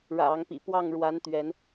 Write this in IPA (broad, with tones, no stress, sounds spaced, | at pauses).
ɻ ä̰˨˩ ɑ˨˦ ŋ p ḭ˨˩ p w ɑ˥˨ ŋ ɻ w a˨˦ n t̪ ɥ ɛ˨˦ n